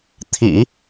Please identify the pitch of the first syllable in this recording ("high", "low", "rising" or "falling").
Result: low